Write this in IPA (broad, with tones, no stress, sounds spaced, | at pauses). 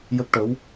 j ə˦˥ k̚ ʈ ə˧˥ w